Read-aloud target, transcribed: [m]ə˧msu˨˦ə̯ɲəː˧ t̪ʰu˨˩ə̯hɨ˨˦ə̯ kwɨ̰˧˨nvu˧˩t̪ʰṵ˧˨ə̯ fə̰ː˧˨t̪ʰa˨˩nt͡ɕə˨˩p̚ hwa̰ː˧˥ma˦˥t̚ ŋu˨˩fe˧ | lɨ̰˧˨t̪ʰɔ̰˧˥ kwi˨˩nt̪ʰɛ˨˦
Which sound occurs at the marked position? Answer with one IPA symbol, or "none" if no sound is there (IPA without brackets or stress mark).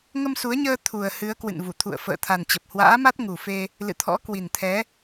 ŋ